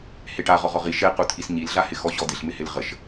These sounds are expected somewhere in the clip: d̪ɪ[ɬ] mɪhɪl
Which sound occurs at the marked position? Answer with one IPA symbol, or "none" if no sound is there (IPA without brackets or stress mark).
ɬ